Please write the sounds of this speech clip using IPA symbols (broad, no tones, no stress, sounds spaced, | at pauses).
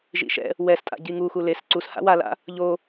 ʒ ḭ ʃ ɛ̰ | w ɛ s tʼ a̰ ɟ i ŋ u x u l e s ǀ u s h a̰ w a l a̰ | ʎ o